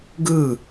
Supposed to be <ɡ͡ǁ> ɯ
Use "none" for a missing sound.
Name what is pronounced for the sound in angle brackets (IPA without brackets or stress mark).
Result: ɡ